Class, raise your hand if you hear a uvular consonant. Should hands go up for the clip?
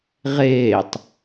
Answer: yes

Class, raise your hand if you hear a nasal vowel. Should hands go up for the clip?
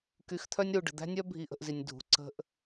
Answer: no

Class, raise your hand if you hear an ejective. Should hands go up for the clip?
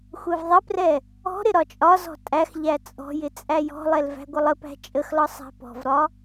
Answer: yes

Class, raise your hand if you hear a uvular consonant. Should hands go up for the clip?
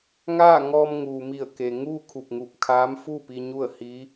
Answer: no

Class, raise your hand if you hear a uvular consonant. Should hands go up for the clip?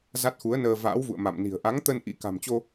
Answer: no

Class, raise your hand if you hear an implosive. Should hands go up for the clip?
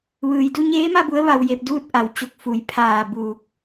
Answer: no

